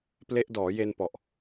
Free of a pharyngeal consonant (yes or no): yes